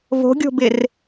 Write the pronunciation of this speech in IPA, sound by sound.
v o̤ ɡʲ o̤ b ɪ r

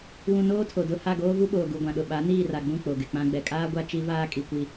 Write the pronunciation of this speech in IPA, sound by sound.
w ũ˨ n oː˦ tʰ o˨ d ʊ˦˨ h a˦˨ ɡ oː˦ v u˦ ɓ oː˨ ɡ u˨ ɡʷ ã˨ ɗ ʊ˨ ɓ a˨˦ n iː˦˨ r a˨ ɡ͡b ũ˦˨ k͡p o˨ ɡ ɪ˨ k͡p ã˦ ɡ͡b ɛ˨ kʼ aː˦ ɡʷ a˦ t͡ʃ i˦ v aː˦ kʼ i˨ kʷ i˨

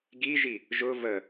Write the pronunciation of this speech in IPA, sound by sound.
ɡ i ʒ i | ʒ ʊ v ə

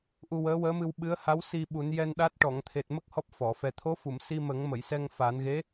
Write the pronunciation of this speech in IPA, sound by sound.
ʔ u˧ w əː˧˥ w əː˧˥ m ɨ˧ w ɓ ɨ˧˥ ə̯ h a˧˥ w s i˧ ɓ u˨˩˦ n j ɛ˧ n ɗ a˦˥ t̚ ʈ ɔ˨˩˨ ŋ t̪ʰ e˨˩ t̚ m ə˦˥ k̚ h ɔ˦˥ p̚ f ɔ˨˩˨ f ɛ˨˩ t̪ʰ o˧˥ f u˨˩˨ m s i˧ m ə˨˩˦ ŋ m ə˨˩˨ j s ɛ˧ ŋ f a˨˩˦ n ɣ e˧˥

